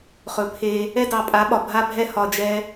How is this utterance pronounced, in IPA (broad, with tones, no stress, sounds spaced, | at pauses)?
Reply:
χ ɵ˨ pʰ e˧ | ɛ˦ d ɑ˨ pʼ a˨˦ ɓ ɒ˨ bʱ a˦ bʱ ɛ˦ h ɒ˨ d͡ʒ ɛ˧